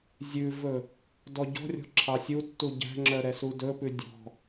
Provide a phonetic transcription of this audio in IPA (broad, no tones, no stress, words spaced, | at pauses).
zʲʉvɵ | dɔɟɔ̤rʲɔ̤ ǁʰɑsʲutːu ɟæ̤ŋ͡ǁœ ɾɛsudɵpʉ dʲɔ̤